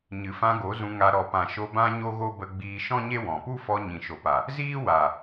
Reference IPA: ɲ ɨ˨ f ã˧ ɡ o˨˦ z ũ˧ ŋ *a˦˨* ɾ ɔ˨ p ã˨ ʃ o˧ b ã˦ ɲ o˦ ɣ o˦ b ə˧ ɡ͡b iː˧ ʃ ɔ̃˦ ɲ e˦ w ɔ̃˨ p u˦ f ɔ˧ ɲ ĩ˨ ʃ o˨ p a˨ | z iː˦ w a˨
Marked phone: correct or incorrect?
incorrect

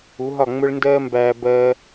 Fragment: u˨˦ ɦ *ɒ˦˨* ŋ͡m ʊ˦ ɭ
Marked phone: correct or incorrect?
correct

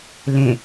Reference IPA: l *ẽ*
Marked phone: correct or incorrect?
correct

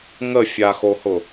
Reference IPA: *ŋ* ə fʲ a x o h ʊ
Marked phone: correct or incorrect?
correct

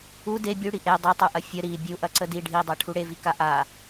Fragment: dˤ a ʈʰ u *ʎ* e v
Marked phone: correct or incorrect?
incorrect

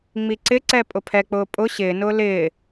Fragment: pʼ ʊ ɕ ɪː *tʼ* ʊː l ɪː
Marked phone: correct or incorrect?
incorrect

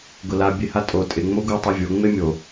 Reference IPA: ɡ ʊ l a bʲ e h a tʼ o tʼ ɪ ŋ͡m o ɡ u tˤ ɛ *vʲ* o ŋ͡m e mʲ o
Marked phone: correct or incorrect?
correct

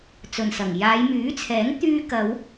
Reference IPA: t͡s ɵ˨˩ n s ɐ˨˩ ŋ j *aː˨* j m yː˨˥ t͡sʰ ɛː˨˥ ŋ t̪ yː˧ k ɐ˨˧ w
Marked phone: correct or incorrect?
incorrect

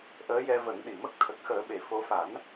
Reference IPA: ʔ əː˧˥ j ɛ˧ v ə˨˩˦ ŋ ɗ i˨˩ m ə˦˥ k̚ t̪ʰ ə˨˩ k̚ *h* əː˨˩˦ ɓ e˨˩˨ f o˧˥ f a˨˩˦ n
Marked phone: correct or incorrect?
incorrect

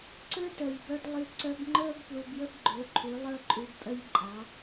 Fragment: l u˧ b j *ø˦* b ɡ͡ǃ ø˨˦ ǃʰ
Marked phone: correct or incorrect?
incorrect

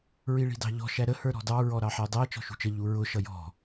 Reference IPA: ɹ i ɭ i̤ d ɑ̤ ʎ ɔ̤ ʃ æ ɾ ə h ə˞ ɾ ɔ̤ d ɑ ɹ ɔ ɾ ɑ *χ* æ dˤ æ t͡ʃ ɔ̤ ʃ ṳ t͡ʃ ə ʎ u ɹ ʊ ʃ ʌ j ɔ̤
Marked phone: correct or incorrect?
incorrect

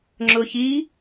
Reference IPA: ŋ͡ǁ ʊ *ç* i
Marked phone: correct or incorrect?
correct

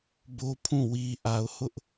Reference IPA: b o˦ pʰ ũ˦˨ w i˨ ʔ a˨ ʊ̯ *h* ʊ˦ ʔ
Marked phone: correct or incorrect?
correct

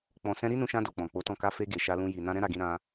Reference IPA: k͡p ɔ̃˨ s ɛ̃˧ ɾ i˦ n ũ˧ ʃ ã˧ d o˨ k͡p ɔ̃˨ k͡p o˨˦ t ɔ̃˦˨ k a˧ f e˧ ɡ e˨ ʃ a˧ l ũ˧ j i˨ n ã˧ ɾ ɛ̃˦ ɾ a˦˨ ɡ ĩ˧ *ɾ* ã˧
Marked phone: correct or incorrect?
correct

